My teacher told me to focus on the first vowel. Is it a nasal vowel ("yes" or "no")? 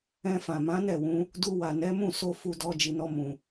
yes